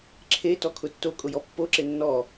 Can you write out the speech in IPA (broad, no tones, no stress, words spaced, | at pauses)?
ǁʰe tɔkʰʊtːo kʼʊjɔpːo ǁenːɔ